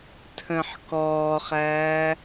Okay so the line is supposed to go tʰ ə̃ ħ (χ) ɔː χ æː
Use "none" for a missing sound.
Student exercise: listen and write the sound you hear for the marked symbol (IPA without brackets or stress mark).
k